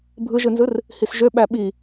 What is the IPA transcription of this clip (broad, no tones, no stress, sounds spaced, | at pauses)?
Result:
bʱ ɯ ʒ ɯ n z ɯ r | h i s ʒ ø ɓ æ ɓ i